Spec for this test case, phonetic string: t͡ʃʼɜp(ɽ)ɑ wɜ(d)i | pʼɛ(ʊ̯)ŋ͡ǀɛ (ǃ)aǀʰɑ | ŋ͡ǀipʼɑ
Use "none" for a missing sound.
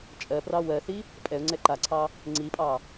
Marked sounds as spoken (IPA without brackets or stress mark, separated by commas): r, θ, ʊ̯, ǃ